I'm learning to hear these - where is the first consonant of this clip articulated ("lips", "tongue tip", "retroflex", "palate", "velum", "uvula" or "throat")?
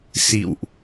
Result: tongue tip